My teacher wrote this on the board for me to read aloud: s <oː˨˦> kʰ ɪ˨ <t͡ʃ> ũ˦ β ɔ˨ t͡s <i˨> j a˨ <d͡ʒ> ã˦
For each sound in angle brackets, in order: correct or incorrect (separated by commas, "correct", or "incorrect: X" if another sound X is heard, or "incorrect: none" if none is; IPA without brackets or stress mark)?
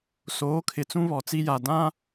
correct, incorrect: t͡s, incorrect: i˦, incorrect: d